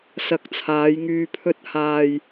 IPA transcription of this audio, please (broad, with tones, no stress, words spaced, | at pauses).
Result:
sɐ˧k̚t͡sʰaː˨˥jŋyː˧ pʰɵ˧t̚haː˨j